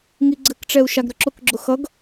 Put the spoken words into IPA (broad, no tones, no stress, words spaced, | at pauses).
ŋiɡ͡ǀɘkʈ͡ʂɛu̯ ʃaɡɾʏǁʊkɡ͡ǁʊ xʌɡ